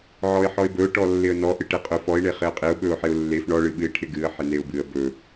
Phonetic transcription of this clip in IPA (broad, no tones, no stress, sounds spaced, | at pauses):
ʕ ɔ ɪ̯ ħ ɔ ɪ̯ b ɵ ʊ̯ ʈ ɔ lː ɪ ə̯ n ɔ ʔ ɨ ʈ e qʼ ɵ f ɔ ɪ̯ ɳ e χ ɪ ə̯ qʼ ɪ ʊ̯ ɓ ɵ ʊ̯ ħ ɪ ʊ̯ lː e f ɳ ɔ ɭ ɨ ɓ ɨ ɪ̯ ʈʰ ɪ ɡ ɨ ə̯ ħ ɪ n e ʊ̯ b ɨ ə̯ b ɵ